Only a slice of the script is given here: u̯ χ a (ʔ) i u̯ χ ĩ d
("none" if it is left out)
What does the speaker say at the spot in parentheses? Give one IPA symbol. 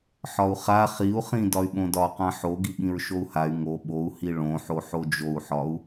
χ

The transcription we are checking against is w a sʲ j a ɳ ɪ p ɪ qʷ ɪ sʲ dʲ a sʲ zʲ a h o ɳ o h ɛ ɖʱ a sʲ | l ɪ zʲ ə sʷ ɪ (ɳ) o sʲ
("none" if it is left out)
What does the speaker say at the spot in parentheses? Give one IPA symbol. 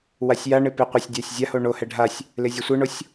ɳ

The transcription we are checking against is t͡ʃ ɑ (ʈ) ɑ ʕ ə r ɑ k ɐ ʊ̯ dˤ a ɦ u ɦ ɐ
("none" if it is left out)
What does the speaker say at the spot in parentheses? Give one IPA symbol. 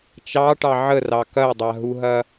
ʈ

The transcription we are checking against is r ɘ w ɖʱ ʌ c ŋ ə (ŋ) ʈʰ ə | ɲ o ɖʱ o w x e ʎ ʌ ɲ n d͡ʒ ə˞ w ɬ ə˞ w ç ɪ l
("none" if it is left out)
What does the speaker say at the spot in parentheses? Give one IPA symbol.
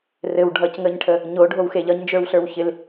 ɲ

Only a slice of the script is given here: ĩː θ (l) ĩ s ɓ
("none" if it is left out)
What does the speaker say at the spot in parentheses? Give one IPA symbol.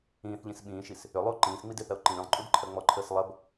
ʎ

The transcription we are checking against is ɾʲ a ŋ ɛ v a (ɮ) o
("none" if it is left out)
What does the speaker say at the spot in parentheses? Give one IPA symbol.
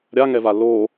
l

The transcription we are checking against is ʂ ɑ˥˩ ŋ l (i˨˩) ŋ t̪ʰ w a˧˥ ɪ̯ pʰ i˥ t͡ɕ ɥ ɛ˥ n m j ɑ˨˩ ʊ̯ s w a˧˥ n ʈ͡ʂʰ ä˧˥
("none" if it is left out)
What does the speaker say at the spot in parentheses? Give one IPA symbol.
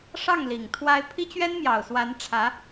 i˨˩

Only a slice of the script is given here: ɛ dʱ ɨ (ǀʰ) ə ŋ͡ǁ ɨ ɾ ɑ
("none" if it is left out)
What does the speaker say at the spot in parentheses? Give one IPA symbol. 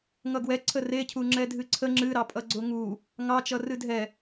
ǀʰ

